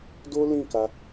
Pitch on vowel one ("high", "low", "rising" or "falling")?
high